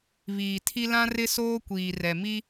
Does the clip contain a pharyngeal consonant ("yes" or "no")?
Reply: no